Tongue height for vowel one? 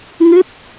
high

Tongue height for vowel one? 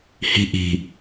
high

